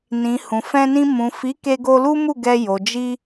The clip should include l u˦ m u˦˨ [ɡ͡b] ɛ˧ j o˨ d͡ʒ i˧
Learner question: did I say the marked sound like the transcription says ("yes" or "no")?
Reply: no